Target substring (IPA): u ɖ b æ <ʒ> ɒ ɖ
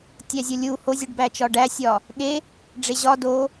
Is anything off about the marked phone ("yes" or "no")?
yes